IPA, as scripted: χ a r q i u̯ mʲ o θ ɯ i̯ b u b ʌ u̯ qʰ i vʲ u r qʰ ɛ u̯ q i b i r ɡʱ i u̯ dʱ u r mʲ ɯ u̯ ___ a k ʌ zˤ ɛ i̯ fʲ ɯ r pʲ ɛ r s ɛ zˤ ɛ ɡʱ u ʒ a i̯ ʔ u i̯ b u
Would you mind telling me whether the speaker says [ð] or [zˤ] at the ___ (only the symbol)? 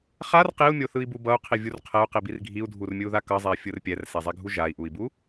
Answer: ð